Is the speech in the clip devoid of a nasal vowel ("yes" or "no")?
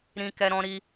no